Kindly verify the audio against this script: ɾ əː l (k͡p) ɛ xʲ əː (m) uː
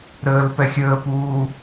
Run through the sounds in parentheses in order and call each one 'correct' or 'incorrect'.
incorrect: p, incorrect: p

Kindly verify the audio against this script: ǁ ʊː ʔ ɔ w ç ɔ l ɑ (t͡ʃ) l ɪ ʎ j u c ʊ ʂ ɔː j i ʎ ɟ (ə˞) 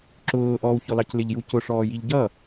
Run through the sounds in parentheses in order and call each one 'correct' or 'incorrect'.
incorrect: c, incorrect: ʌ

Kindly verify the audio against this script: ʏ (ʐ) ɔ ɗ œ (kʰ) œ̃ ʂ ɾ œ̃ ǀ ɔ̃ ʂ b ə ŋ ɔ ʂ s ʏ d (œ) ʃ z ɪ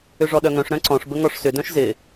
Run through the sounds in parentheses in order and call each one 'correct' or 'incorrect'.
correct, incorrect: ŋ, incorrect: œ̃

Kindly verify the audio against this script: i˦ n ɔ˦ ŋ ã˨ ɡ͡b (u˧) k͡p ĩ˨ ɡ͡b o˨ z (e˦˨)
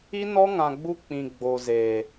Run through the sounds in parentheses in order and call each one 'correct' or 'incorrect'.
correct, incorrect: e˨

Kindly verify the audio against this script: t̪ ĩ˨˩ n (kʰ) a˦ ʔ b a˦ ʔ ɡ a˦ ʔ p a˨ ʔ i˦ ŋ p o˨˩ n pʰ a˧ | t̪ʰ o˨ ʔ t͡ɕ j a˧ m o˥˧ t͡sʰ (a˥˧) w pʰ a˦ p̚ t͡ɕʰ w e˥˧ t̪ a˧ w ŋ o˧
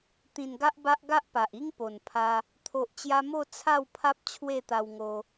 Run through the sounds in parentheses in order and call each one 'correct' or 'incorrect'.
incorrect: ɡ, correct

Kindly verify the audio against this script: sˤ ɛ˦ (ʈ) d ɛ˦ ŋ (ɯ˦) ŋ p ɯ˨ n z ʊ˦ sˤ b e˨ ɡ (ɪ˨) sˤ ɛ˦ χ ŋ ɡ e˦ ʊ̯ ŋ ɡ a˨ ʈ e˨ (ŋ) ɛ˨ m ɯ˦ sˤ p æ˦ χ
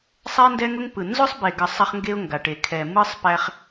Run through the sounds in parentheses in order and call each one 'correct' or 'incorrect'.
incorrect: n, incorrect: ʊ˦, incorrect: ə˨, incorrect: kʰ

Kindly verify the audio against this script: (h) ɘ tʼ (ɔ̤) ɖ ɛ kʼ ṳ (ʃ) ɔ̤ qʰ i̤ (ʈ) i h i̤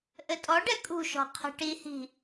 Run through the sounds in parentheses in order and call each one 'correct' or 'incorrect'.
incorrect: ʔ, incorrect: ɔ, correct, correct

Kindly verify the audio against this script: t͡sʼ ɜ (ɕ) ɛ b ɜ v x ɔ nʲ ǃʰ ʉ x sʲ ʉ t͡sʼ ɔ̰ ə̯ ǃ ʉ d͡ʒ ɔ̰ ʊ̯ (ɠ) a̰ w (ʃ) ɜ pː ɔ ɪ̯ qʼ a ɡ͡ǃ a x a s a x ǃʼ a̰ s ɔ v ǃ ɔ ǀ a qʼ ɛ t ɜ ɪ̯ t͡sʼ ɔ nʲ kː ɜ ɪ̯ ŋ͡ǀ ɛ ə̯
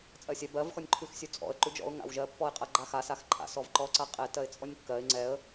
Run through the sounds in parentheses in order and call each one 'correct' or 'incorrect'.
incorrect: sʲ, incorrect: ŋ, incorrect: ʒ

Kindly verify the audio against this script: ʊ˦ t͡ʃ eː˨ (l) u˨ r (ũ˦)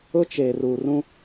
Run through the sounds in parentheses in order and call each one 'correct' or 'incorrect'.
incorrect: r, correct

